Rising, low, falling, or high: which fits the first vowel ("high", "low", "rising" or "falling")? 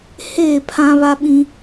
falling